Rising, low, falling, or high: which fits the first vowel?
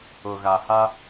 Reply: low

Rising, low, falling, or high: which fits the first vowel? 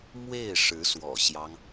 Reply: falling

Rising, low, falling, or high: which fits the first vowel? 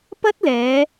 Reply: high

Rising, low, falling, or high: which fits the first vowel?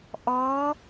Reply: rising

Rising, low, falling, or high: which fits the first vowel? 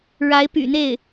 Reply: rising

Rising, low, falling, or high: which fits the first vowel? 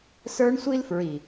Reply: high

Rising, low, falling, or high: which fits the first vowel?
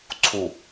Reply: low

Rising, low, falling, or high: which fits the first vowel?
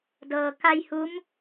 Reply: low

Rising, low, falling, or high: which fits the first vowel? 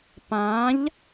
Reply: rising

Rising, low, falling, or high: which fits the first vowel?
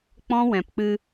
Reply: high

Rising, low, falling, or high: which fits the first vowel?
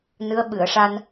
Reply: rising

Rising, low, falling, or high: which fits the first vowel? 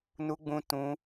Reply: high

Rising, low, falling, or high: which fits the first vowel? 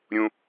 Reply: high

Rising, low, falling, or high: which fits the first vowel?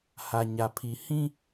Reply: low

